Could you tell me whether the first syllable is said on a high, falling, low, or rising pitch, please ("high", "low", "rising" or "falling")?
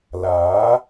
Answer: rising